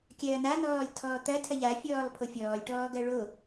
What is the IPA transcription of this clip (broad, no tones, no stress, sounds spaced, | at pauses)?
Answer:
kʲ ɐː n̪ a n̪ ɔː lʲ tʰ ɔː t̪ ɐ tʰ ɐ ʎ a fʲ ɔː lˠ pʰ o fʲ ɔː lʲ ʈ ɔː ɡ ɐ ɭ o